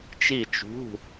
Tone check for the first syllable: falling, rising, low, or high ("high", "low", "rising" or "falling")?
falling